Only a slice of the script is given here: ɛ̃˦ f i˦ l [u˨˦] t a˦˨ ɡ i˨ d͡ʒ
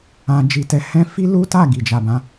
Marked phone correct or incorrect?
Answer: incorrect